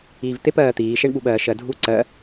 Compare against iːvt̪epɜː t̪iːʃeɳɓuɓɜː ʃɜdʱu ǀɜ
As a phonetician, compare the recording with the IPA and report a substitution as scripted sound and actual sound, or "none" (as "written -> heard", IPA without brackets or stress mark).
none